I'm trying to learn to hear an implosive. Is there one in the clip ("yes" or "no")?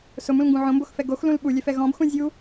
yes